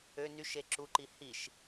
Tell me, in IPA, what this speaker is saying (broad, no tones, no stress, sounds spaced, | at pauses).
ø n y ʃ e ǁ u ǃ i h i ʃ